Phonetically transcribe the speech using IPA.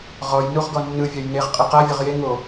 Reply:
ʁɔj nuʁɡɔnːɯvʲaj neʁqʼɯ qavʲɤʁ je ŋo

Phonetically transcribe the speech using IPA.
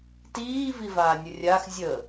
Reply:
tiː vivaːnʲərʲax zʲə

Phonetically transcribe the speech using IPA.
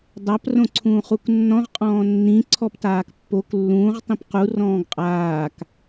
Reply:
dˤap rõǀʰũːχuknːɔ̃ʁ qʼɔ̃ːnːĩ ǀʰɔptaːkpːok lːũːʁ tˤĩpqu rɔ̃ːɡqʼaːk

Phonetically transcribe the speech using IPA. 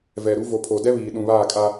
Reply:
vɛ˨ɾu˨˦ vo˨pʰo˨dɛ˦βiː˨ ɗũ˨βaː˦˨kʼa˦

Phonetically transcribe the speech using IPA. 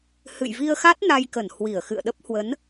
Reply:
hɨ̰˧˨jvi˧ə̯xa˦˥t̚ na˧jkə˧˩n hwi˧˩ə̯ xɨ̰˧˨ə̯ɗə˦˥p̚ hwə˨˦n

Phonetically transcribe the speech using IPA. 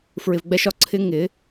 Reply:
fɹɪ˧vɡ͡bɛ˦ʃɒ˨ ǀʰɪ˦ ŋɪ˨˦

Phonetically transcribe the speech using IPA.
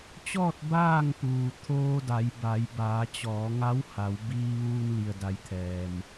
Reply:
t͡ɕɔː˥˨t̚ baː˥˨ŋpuː˩ t̪ʰoː˧da˩˧jba˩˧j baː˩˧t͡ɕɔː˩˧ŋa˧˥wha˩˧w biː˧ʋuː˧n li˩ə̯da˩˧jt̪ʰɛː˩m

